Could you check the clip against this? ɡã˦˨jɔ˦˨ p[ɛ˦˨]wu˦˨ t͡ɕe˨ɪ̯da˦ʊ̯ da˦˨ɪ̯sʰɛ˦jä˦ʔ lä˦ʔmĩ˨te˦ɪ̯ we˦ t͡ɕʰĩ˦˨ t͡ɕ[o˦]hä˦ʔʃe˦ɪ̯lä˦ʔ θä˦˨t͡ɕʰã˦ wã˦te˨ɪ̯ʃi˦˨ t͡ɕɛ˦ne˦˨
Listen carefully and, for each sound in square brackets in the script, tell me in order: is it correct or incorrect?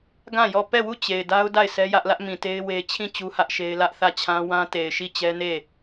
correct, incorrect: u˦

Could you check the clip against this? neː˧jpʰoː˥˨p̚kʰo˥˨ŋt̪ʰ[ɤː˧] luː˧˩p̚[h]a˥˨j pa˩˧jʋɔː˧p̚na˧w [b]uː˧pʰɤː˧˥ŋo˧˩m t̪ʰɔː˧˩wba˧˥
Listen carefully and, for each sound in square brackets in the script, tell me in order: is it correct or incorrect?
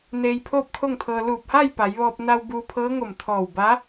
correct, correct, correct

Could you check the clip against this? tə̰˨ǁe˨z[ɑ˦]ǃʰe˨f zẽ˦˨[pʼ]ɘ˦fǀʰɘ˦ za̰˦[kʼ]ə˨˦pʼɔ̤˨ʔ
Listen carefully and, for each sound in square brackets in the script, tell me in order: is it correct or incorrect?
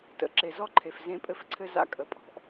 incorrect: ɔ˦, correct, correct

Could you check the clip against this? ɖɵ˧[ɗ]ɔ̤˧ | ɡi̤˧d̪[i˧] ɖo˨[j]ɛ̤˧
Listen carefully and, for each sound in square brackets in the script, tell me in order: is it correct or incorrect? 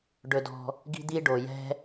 incorrect: d, correct, correct

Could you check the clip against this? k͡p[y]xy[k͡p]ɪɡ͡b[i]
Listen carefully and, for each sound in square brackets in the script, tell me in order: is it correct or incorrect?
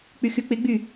correct, correct, incorrect: y

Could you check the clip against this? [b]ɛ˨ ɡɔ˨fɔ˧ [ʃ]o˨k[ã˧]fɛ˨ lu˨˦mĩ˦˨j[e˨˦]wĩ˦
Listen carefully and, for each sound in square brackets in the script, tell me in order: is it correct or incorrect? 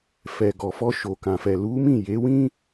incorrect: f, correct, incorrect: ã˨, correct

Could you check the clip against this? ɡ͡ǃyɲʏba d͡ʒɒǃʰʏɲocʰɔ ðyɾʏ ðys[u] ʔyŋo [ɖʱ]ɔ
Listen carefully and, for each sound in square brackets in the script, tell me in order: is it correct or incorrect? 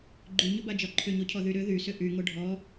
incorrect: ʏ, correct

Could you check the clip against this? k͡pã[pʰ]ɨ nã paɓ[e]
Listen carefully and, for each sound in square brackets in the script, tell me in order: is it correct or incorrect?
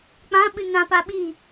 incorrect: ɓ, incorrect: i

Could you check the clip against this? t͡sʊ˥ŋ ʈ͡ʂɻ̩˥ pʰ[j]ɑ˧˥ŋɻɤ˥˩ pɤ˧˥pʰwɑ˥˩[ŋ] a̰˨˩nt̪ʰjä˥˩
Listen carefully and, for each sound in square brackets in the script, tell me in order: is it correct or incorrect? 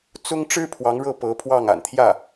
incorrect: w, correct

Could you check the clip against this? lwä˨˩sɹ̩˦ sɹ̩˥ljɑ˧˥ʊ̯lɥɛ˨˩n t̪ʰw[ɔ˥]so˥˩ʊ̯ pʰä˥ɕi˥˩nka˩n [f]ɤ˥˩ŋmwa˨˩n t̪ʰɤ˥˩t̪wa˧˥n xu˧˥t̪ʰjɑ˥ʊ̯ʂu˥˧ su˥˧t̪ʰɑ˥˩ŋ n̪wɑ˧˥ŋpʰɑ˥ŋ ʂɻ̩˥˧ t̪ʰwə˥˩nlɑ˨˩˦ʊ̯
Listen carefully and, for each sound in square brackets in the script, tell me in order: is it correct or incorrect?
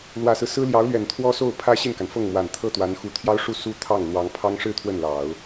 correct, correct

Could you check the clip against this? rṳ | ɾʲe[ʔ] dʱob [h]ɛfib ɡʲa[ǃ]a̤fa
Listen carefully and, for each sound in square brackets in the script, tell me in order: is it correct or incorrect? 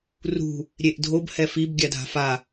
correct, correct, incorrect: dʱ

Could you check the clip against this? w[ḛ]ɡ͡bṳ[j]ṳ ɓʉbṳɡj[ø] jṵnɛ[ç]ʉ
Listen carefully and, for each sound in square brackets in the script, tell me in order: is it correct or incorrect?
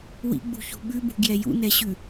incorrect: ḭ, incorrect: ç, incorrect: ɛ, incorrect: ɕ

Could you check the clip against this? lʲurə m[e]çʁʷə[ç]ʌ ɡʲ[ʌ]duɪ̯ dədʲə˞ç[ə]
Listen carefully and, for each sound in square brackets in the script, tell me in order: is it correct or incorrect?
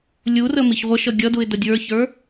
incorrect: i, incorrect: ʃ, correct, incorrect: ə˞

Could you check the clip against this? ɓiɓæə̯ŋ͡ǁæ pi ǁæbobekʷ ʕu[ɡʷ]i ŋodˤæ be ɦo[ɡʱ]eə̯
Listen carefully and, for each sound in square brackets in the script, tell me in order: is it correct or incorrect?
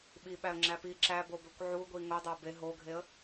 correct, correct

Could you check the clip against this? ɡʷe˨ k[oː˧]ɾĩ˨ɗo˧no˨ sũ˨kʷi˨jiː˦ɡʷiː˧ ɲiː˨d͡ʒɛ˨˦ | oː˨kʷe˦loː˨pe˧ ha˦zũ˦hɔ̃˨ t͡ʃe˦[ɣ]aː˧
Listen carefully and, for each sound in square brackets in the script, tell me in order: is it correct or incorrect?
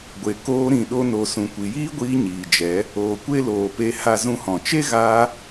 correct, correct

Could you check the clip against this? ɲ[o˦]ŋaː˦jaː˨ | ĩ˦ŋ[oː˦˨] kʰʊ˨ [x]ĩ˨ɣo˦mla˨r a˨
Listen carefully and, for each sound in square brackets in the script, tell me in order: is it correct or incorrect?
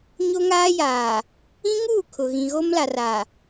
correct, incorrect: uː˦˨, incorrect: ɣ

